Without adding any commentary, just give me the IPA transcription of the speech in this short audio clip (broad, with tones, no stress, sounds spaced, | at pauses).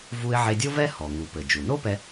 v u˧ ɪ̯ ʕ e˧ dʲ o˥ v ɛ˥ h ɔ˩ ŋ u˩ p ɘ˩ d͡ʒ u˩ n o˥ p ɛ˧